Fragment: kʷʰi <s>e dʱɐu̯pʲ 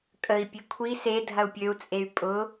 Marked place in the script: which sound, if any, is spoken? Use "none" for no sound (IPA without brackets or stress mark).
s